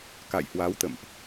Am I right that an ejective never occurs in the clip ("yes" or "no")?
yes